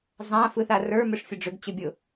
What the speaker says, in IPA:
zˤ ã f ɯ θ a r ə˞ m ʏ ʂ fʲ ʊ ɖ͡ʐ ʏ ɡ t͡ɕ ʏ bʲ ʊ

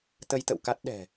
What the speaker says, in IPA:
t̪ ə˧ j t̪ ə̰˧˨ w k a˦˥ t̚ ɗ ɛ̤˨˩

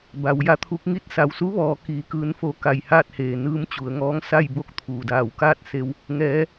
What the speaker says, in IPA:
b a˩˧ w j a˧˥ t̪ʰ u˧˥ k̚ ŋ i˥˨ t̚ s a˩ w s u˧˥ ʋ ɔː˩˧ k iː˩ k ɯː˩˧ n f o˩˧ k a˧˩ j h aː˥˨ t̚ h eː˩ n ɯː˧ m t͡ɕ u˩˧ ə̯ ŋ ɔː˧˥ ŋ s a˥˨ j b o˥˨ k̚ t̪ʰ uː˩ d aː˧˩ w k aː˥˨ t̚ s e˧ w | ŋ ɛː˩˧

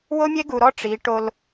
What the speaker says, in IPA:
w o˦ mʲ e˦ ɡ u˨ ɾ ɔ˦ ʈ͡ʂ i˨˦ ʈ o˦ l

